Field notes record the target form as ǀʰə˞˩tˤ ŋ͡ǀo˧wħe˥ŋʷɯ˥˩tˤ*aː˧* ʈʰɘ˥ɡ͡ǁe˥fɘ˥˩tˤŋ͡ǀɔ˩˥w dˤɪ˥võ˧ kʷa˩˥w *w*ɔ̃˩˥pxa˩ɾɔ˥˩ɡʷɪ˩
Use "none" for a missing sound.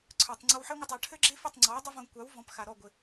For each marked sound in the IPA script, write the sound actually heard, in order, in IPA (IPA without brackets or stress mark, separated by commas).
a˧, v